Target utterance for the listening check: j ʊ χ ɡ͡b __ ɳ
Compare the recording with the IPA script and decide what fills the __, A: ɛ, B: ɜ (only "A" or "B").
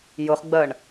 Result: B